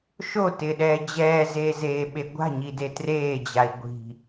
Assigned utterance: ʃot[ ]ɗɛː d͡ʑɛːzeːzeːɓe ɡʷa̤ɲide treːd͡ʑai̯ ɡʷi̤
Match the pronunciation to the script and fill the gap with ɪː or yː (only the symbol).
ɪː